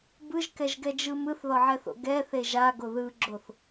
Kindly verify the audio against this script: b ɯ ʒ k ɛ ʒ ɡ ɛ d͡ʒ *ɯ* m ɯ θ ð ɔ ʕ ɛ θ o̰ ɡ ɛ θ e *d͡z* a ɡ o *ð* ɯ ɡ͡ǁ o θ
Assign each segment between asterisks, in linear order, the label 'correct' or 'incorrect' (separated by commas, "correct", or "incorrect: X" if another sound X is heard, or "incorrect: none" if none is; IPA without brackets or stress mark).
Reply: correct, incorrect: ʒ, correct